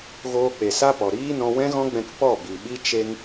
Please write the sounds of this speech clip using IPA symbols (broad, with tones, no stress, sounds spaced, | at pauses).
ɣ oː˧ k͡p e˨ s a˦ p ɔ˨ ɾ iː˦ n ɔ̃˧ w ɛ̃˦ ɣ ɔ̃˦ ɡ͡b ɛ̃˧ k p ɔ˦˨ b i˨ ɓ i˦ t͡ʃ e˦ ŋ